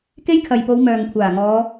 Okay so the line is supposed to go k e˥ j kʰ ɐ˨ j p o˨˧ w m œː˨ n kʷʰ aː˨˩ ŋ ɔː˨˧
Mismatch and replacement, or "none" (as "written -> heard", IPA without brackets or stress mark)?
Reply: n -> ŋ